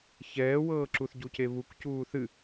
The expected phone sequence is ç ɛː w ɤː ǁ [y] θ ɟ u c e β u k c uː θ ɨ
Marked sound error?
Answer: yes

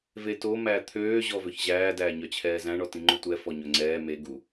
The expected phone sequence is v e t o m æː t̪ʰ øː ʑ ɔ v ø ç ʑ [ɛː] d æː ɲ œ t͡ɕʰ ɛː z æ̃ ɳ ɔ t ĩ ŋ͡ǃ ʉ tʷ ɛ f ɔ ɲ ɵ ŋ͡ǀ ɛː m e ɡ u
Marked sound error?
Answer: yes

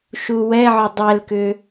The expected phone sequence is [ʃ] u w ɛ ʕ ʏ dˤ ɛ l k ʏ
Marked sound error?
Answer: no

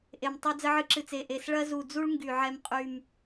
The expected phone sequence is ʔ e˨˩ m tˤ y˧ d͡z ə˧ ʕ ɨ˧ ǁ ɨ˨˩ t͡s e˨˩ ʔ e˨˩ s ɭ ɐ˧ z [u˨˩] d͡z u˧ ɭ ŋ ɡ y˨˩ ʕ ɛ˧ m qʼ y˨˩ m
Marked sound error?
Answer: no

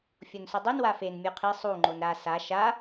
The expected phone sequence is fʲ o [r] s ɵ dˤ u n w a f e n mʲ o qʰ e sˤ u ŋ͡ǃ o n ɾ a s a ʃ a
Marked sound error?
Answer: yes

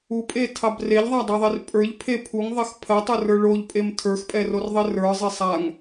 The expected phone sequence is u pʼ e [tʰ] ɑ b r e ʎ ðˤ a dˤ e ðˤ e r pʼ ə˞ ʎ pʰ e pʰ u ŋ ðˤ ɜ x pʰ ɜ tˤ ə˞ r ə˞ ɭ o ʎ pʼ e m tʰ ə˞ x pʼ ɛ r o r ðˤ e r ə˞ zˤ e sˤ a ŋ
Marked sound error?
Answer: no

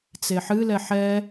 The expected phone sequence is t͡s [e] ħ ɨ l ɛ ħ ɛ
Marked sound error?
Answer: no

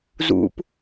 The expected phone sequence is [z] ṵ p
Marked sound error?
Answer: no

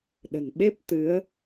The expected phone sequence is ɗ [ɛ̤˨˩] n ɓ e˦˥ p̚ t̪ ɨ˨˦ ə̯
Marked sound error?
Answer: yes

